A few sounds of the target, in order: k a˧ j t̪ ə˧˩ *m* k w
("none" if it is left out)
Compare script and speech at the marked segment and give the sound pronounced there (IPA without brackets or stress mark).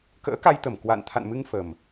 m